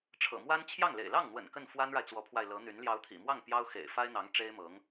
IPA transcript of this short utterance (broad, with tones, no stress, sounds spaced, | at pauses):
ʈ͡ʂʰ ɤ̰˨˩ m w a˥ n t͡ɕʰ j ɑ˥˩ ŋ l ḛ˨˩ ɪ̯ l ɑ˥˩ ŋ n̪ w ə̰˨˩ n k ə˥˩ n f w a˥ n ɻ a˨ ɪ̯ t͡s w ɔ˧˥ pʰ w a˧ ɪ̯ l ɤ˧˥ n̪ y˧˥ n l j ɑ˧˥ ʊ̯ t̪ʰ ḭ˨˩ m w ɑ˥˩ ŋ p j ɑ˥ ʊ̯ x ḛ˨˩ ɪ̯ f a˥ ɪ̯ n̪ ɑ˧˥ ŋ ʈ͡ʂ e˥ ɪ̯ m ɤ˧˥ ŋ